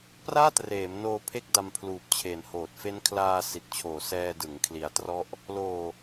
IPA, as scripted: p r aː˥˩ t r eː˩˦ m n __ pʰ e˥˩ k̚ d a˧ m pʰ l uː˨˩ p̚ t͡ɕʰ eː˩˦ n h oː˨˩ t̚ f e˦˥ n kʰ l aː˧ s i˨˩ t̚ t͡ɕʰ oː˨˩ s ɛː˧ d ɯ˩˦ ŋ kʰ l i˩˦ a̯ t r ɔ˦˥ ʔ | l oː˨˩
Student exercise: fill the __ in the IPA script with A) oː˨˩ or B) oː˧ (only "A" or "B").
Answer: B